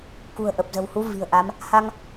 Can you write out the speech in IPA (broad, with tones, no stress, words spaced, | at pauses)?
kṳ˨˩ə̯ʔə˨˩p̚zə̤˨˩whu˨˦ vi̤˨˩ə̯ ʔa˨˦m | ha˧ŋ